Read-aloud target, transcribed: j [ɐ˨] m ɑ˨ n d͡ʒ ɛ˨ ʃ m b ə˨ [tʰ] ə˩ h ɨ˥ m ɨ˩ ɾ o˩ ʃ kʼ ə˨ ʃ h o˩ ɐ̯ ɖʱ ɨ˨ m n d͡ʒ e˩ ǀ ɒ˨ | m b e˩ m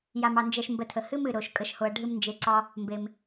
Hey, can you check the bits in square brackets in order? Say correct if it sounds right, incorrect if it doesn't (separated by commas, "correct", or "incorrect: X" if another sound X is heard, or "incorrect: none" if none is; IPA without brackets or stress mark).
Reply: incorrect: a˨, correct